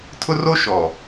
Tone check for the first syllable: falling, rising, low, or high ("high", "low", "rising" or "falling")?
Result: high